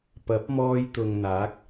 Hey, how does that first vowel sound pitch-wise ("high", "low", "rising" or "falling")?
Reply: rising